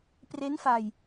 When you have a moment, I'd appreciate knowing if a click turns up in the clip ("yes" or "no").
no